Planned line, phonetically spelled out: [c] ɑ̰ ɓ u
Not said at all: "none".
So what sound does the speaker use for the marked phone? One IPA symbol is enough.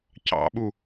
c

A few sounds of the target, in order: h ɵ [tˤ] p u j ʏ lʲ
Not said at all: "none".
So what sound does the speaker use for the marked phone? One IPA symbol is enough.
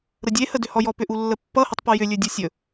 tˤ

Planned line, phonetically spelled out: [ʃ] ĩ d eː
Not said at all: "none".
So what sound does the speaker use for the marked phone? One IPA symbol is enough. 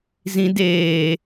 z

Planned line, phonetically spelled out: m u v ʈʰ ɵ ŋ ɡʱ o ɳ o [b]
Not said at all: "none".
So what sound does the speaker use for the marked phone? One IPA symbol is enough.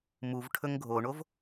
v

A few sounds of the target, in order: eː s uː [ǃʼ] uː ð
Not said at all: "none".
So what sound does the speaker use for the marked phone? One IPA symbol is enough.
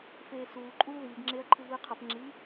ǃʼ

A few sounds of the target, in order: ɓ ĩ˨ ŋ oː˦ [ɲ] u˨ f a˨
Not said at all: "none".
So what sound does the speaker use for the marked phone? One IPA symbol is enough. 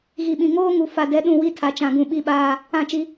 ŋ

